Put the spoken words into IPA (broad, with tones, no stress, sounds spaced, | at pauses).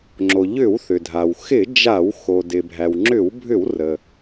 ŋ͡ǁ o˩ ʎ ʏ˧˩˧ w θ ʏ˩ dʱ a˩ w x ɪ˧˩˧ d͡ʒ a˧˩˧ w x o˩ d ɪ˩ bʱ æ˩ w ŋ͡ǁ ʏ˧˩˧ w bʱ ʏ˧˩˧ w r ə˩